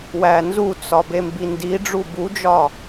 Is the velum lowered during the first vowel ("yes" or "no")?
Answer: no